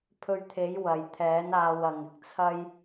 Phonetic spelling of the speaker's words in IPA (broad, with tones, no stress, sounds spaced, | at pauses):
pʰ ɵ˧ ɥ t̪ʰ e˨˥ j w ɐ˨ j t̪ʰ ɛː˨˥ n aː˧ w ɐ˨ ŋ ɪ˨ k̚ t͡sʰ ɐ˥ j